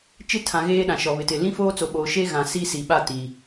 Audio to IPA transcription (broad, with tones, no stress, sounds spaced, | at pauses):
t͡ʃ ɪ˦˨ tʰ ã˨ ɣ eː˦ ɗ ã˨ ʃ ɔ˨ β ɪ˨ t ɪ˨ l ĩ˦ f oː˦ t͡s o˨ ɓ oː˨ ʃ e˦ ɣ ã˨ s i˦ s i˨ ɓ a˦˨ t i˨